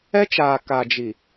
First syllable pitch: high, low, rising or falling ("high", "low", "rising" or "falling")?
high